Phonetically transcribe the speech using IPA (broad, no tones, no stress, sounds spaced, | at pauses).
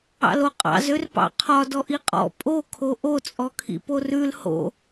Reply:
ɑ̰ l o qʼ ɑ̰ z ø r p ɑ̰ qʰ ɒ d ɔ ʔ i qʼ ɔ̰ pʼ o kʰ o ʔ o t͡sʼ ɔ kʰ ḭ p o r ʉ l h o̰